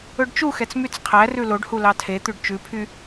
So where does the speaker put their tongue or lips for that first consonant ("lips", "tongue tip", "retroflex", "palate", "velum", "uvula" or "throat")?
retroflex